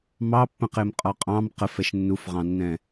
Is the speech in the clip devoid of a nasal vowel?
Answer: no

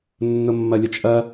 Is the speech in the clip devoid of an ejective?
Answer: no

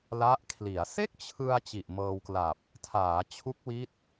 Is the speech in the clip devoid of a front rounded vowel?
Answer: yes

